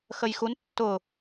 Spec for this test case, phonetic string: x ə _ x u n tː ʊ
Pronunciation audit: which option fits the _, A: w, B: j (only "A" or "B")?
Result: B